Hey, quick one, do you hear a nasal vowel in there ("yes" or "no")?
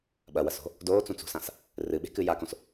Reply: yes